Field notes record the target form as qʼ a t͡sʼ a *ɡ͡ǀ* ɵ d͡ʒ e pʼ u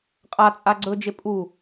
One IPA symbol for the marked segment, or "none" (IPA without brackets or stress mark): ɡ͡ǀ